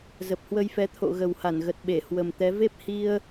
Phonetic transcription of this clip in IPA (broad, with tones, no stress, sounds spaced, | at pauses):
z ə˨˩ p̚ h w ə˧ j f ɛ˨˦ t̪ʰ o̰˧˨ ɣ ə˨˩ w h a˧˩ n ɣ ə˨˩ t̚ ɓ e˧˩ h w ə˨˩ m t̪ ɛ˨˦ v e˦˥ p̚ h i˧ ə̯